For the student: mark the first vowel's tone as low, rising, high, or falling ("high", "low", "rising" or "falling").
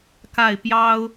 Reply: falling